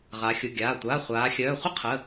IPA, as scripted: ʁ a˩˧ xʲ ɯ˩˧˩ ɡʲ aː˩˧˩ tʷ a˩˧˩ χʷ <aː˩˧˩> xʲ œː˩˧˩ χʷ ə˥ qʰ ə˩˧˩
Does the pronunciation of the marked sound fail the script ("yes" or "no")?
yes